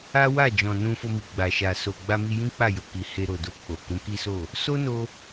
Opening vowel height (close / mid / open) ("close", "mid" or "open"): open